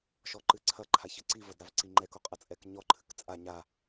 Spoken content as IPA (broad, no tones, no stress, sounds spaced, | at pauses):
ʃ ɔ ǃ ɨ ǀʰ ɐ ǃʰ a ç ɘ ǀ i v ɐ d ɾ a v ǀ i ŋ͡ǃ ɛ k o qʼ ɐ t͡sʼ ɛ k ɲ ɔ ǃʰ ɨ k t͡sʼ a ɲ a